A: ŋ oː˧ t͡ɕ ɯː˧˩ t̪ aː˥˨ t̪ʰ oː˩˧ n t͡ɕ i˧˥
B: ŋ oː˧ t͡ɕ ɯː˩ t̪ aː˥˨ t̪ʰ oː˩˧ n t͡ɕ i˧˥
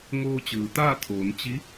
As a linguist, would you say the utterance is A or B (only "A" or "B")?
B